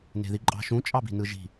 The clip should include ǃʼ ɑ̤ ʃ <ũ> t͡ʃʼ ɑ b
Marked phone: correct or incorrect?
correct